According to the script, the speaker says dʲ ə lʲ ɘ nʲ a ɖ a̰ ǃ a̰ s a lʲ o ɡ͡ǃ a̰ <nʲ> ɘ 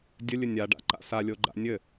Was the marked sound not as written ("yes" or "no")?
no